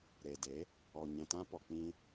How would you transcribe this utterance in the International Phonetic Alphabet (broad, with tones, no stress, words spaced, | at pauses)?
ɾe˨de˨˦ | ɔ˨ ɲɛ̃˨tã˧pɔ˨ k͡pĩ˧